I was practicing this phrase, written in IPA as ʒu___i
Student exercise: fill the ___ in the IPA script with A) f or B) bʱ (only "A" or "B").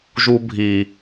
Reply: B